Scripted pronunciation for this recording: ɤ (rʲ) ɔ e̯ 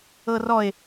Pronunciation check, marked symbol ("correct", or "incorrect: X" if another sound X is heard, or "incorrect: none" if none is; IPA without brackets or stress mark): incorrect: r